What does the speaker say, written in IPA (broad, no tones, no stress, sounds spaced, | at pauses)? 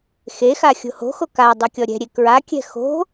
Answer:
x e x a xʲ o̤ h o̤ x o k a dˤ u kʲ ɔ ɾʲ ɛ̤ ɾʲ e k ɹ a kʲ ɛ̤ x o̤